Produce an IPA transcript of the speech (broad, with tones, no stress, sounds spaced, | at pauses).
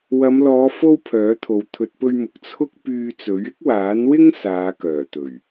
w ɐ˨˧ m l ɔː˨˧ f o˥ w pʰ œː˨˥ t̪ʰ o˨˧ w t̪ʰ ɵ˨ t̚ p ɵ˧ ɥ m ʊ˨ k̚ t͡sʰ ʊ˥ k̚ p yː˧ t͡s ɵ˨˥ ɥ ɪ˥ k̚ w aː˨˥ n w ɪ˥ ŋ s aː˨˧ k œː˨˩ t̪ ɵ˨˩ ɥ